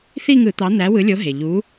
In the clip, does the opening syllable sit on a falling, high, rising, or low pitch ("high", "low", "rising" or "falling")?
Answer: falling